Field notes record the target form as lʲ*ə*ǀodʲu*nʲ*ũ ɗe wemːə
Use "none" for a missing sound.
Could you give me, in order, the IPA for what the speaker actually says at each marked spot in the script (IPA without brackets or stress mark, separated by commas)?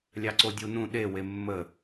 ɑ, n